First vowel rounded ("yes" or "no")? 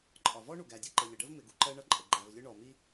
yes